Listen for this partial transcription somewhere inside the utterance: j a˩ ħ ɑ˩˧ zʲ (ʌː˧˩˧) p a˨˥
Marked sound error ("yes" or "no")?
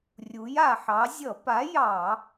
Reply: yes